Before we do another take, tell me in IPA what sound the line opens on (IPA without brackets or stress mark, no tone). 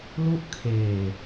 l